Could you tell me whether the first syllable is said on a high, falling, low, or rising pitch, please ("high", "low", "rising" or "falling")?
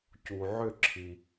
low